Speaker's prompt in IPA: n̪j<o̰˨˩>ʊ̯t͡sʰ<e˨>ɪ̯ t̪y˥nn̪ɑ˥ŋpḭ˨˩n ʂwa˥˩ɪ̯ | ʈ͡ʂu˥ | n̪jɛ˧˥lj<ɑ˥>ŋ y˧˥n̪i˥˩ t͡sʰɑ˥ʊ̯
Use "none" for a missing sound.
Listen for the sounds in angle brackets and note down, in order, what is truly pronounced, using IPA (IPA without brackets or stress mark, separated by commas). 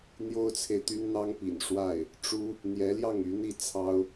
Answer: o˥, e˨, ɑ˥˩